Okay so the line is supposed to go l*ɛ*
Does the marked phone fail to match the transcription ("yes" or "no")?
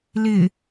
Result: yes